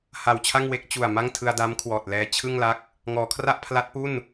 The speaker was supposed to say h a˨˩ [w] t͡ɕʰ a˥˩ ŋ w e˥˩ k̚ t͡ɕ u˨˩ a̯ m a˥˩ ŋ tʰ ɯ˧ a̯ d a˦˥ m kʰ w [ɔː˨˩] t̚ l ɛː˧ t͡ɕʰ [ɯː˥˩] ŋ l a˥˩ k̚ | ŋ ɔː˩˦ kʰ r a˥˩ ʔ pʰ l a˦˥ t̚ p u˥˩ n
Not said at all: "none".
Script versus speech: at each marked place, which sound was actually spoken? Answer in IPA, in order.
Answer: w, ɔː˨˩, ɯ˥˩

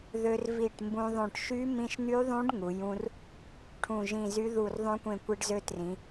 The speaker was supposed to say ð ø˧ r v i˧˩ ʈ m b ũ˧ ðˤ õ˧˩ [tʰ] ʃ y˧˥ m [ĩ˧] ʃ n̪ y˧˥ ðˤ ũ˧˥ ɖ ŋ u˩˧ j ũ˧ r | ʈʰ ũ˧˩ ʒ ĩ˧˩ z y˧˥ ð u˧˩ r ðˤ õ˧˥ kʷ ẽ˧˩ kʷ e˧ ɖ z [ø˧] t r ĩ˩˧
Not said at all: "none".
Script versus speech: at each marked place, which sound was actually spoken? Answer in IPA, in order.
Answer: ʈ, ĩ˧, ø˧

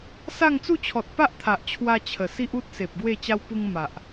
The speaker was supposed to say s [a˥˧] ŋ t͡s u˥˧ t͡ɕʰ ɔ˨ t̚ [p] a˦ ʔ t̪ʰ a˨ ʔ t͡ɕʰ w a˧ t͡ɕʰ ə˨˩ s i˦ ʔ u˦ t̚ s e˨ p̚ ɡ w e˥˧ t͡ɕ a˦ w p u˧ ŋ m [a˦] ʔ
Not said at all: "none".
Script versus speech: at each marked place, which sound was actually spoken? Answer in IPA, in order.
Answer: a˥˧, p, a˨

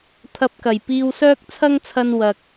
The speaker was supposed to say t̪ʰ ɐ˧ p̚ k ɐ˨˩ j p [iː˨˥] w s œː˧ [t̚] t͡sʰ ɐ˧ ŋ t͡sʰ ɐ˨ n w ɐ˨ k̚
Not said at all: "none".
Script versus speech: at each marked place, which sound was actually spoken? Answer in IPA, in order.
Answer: iː˨, k̚

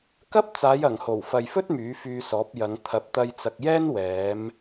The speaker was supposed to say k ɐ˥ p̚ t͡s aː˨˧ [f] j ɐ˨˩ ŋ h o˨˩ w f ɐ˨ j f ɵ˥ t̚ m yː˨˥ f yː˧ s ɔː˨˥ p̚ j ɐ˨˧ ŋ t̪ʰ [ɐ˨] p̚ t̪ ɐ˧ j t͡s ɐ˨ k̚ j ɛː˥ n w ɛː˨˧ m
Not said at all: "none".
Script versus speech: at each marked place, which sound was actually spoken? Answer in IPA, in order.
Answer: none, ɐ˨˥

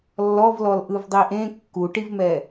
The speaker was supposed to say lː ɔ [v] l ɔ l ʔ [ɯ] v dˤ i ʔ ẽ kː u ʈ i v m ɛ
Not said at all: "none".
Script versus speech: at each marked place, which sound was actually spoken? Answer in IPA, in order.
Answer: v, ɯ

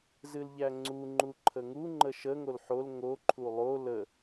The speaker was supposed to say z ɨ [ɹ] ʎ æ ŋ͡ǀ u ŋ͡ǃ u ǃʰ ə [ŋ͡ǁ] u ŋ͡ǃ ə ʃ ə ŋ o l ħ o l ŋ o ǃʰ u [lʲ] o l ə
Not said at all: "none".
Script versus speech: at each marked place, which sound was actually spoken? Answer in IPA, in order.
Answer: l, ŋ, lˠ

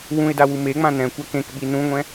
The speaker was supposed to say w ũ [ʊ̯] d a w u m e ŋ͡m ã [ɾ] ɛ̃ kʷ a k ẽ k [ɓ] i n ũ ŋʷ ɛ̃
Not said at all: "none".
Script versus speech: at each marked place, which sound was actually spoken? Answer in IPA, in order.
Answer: ɪ̯, n, ɓ

